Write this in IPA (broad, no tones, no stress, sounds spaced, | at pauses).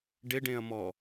ɖ ɪ ɖ ẽ ɐ̯ m ɔ